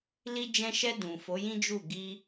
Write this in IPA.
l i˧ d͡ʒ ɛ̃˧ ʃ ɛ˧ d ũ˨ f o˨˦ j ĩ˦ d͡ʒ u˦˨ ɡ i˧

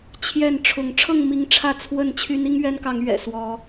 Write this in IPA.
t͡ɕʰ j ɛ˥˨ n ʈ͡ʂʰ ʊ˨˦ ŋ ʈ͡ʂʰ ɤ˥˨ ŋ m i˨˦ ŋ ʈ͡ʂʰ ä˥˨ t͡sʰ w ə˥˨ n t͡ɕʰ y˦ n i˦ ŋ ɥ ɛ˦ n k ɑ˨˦ ŋ ɥ ɛ̰˨˩ s w ɔ˨˦

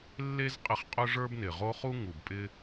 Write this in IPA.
lː e˥ z qʼ ɪ˦ χ qʼ ʊ˥ ʐ ə˞˥ b n ɪ˨ ʁ o˥ χ u˥ ŋ u˨ b pʼ ɪ˦

